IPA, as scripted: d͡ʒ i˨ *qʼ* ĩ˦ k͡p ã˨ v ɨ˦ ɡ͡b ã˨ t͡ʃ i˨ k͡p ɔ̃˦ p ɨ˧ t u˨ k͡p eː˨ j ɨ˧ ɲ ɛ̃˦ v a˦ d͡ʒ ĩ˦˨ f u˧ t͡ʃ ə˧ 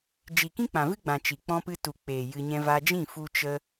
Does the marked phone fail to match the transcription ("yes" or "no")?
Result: yes